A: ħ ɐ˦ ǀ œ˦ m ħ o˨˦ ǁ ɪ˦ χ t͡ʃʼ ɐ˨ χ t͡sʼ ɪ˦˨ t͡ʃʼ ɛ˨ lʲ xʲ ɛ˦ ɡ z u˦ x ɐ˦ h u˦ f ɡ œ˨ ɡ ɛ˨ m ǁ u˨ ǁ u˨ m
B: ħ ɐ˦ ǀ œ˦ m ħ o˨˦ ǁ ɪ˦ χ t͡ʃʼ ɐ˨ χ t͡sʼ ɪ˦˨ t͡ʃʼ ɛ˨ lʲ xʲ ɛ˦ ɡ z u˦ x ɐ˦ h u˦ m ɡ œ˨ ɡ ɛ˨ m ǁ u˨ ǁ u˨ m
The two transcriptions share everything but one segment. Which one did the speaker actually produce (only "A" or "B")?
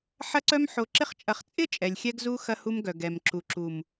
B